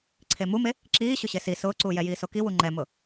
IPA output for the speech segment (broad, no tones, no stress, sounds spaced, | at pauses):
ǀʰ e m u m e | ǁ iː ɕ ʊ ɕ e s i s ʊː ǀ uː j ɛ j iː s o k i w u ŋ͡ǃ ɛ m ʊ